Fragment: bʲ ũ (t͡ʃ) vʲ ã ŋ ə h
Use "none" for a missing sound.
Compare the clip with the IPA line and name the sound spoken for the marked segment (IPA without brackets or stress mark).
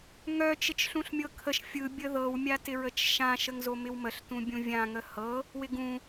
none